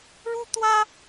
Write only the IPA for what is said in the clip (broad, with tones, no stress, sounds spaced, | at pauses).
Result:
ɻ u˥ t̪ w ä˥